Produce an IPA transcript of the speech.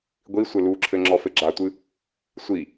ɡʷi sʷɘluǁʰɘ ŋ͡ǁɔfɘɡ͡ǁatʷɨ | sʷi

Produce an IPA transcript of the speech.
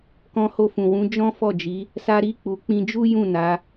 kɔ̃˧ho˧ fũ˨wũ˨˦ d͡ʒɔ̃˦fɔ˦˨d͡ʒi˨˦ | sa˦ɾi˦˨ k͡pu˨k͡pĩ˧d͡ʒu˦jũ˦˨ na˨˦

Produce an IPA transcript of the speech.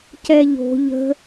cɛʎo̤ ʎə̤

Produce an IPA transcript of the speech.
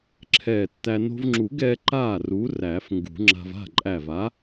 ǁʰɛː˧˩tːæ˧ no̤˧vŋ͡ǁu˨˩˦ɡɛː˧ ǃaː˥˩ru˨˥ ræ˨˩˦fŋɡṳ˨˩˦ŋ͡ǁa̤˧v a̤˥˩ǃʼæ˧˩va˨˥

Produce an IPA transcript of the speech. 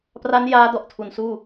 pra˦˥njaː˦˥dɔ˨˩ʔ tʰu˨˩nsuː˥˩

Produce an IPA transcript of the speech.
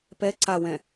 pɛ ǀawɛ̃

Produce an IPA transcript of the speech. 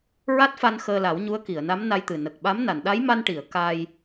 ɹa˦˥t̚fa˧n xəː˧la˨˩˦wɲu˧˥ə̯ ki˨˩˨ə̯na˧˥mna˧jt̪ɨ˨˩ nə˨˩k̚ɓa˧˥m na˨˩˨nɗa˧˥jma˧n ʈi˨˩˨ə̯ ka˧j

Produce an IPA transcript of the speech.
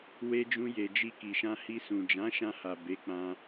we˧d͡ʒũ˧je˨ d͡ʒi˧ki˨ ʃã˧hi˧ sũ˨d͡ʒã˨˦ʃã˧ha˨ be˨˦k͡pã˧

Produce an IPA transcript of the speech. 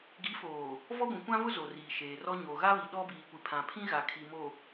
ɡi˨˦foː˨ | vɔ˦ɡʷĩ˨kʷã˦vʊ˦ zo˨riː˨ ʃeː˨rɔ˦ ɲo˨ɣa˦βi˨ ɗɔ˦ biː˨kʷi˨pʰã˨pʰĩ˦ ɣa˨kʰi˨mo˨

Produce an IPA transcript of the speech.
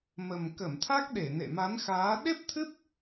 mə˨˩mkə˧˩mt̪ʰa˦˥k̚ɗe˧˩ nḛ˧˨ma˨˦nxaː˨˦ ɗe˦˥p̚t̪ʰɨ˦˥p̚

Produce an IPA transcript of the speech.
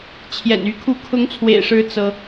t͡ɕʰjɛ̰˨˩ny˧˥kʰu˥˩ kʰʊ˧˥ŋt͡sʰwḛ˨˩ɪ̯ʂɻ̩˧˥ t͡sɤ˥

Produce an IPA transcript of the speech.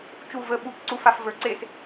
t͡ʃu və ɓup ǀufaf və˞ǀes

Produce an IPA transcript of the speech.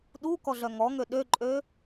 ɗu kɔɮœŋɔŋø ɗøǃʼø

